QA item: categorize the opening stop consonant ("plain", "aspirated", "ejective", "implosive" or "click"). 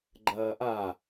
click